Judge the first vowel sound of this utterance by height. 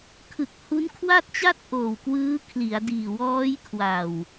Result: high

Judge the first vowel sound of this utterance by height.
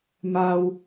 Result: low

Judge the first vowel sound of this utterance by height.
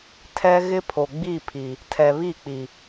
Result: mid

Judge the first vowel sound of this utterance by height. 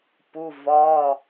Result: high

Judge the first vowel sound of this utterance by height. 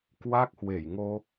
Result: low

